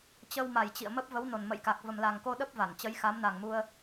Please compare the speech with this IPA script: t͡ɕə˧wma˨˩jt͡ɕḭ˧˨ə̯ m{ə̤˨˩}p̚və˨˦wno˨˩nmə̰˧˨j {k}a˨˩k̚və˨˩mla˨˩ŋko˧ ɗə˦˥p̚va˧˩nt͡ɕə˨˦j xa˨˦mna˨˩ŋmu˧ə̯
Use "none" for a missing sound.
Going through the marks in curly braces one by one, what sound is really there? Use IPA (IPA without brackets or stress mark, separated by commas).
ə˦˥, k